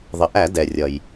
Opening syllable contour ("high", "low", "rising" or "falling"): low